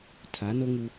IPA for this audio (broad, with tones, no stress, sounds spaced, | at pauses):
tʰ a˨˦ n o˦ ŋ u˦